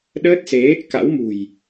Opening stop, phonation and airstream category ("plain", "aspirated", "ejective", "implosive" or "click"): implosive